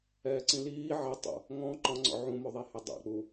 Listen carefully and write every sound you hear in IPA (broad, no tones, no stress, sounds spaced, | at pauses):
ɛː ǀ ĩ l iː ʕ ɛ tˤ o̰ | ŋ ɔ̃ ǃ ɔ̃ ŋ͡ǀ ɔ̰ ʕ ũ m o ðˤ e h e dˤ ɛ̰ k͡p u